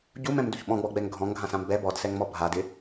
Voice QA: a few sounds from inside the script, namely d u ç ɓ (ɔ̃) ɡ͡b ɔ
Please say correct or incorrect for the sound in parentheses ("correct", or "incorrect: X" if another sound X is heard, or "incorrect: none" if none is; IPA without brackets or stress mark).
correct